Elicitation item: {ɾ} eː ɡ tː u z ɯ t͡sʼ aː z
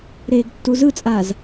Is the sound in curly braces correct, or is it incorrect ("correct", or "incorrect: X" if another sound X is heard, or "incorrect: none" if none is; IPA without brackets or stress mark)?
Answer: correct